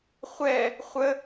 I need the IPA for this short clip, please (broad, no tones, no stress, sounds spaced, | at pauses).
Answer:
χʷ ɛ | χʷ ə